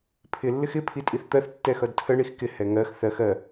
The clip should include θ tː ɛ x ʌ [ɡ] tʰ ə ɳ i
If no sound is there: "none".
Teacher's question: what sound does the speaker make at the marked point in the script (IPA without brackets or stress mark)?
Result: d